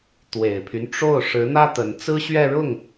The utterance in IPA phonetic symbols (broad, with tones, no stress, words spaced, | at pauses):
t̪we˨˩ɪ̯pʰy˦nʈ͡ʂo˥˩ʊ̯ ʂɻ̩˧˥n̪ä˥ t̪ə˧˥n t͡sɹ̩˥ɕɥɛ˥˧ɻʊ˥˩ŋ